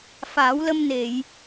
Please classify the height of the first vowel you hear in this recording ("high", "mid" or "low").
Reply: low